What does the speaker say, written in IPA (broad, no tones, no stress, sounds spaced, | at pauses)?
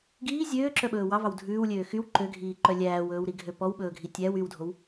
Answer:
ɡ iː zʲ øː ǁ œ ɓ ɵː w ɑ v ɑ w dʱ ʉː w lʲ øː x y w ǃ ø ɡʱ iː ǃ œ lʲ æː w ɵː w ɾ i ɡʱ ø p ɔ w ɓ ɵː ɡʱ i tʲ æ w y w dʱ o w